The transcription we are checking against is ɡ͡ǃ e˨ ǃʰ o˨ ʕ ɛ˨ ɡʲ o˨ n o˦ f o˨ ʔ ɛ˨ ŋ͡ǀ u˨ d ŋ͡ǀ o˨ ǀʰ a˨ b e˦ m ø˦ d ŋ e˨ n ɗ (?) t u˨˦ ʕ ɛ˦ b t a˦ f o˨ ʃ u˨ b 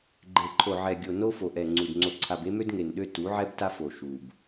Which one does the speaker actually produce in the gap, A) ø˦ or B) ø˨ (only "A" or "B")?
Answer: A